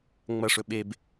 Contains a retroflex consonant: yes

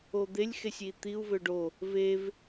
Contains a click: no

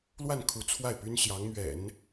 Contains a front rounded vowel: yes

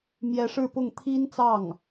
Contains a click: no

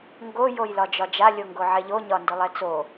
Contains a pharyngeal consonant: yes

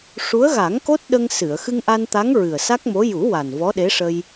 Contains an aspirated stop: no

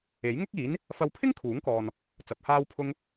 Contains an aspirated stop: yes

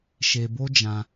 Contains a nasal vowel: yes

